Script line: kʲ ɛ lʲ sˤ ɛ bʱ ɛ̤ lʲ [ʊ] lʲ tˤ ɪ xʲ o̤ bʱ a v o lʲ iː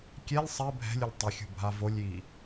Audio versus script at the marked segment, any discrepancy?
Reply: no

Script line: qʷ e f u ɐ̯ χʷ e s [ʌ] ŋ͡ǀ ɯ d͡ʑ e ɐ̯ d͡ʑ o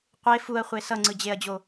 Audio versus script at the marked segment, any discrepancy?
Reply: no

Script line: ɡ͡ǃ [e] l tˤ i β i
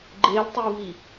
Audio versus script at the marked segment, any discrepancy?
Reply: no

